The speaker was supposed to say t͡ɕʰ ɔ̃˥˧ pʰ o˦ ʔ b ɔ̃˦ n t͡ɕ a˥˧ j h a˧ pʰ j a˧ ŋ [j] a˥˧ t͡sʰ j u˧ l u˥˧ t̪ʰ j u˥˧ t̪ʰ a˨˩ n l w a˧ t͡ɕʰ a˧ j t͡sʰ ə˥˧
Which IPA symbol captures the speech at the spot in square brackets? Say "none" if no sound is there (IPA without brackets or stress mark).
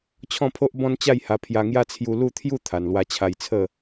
j